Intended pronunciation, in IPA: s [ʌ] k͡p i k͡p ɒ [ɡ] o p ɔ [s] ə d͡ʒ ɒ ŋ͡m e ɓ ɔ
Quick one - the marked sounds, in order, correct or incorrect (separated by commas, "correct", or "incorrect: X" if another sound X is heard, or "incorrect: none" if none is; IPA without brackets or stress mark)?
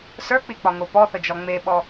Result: incorrect: ə˞, incorrect: ŋ, incorrect: θ